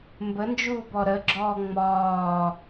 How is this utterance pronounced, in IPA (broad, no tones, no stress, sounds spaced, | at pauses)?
m b ə n d͡ʒ uː b ɔ ɾ ə ɡ͡ǁ ɔː ŋ͡m ɒː